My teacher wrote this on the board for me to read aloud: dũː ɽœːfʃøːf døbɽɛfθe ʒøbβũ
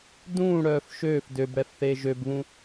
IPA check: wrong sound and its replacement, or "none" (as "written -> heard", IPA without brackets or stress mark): none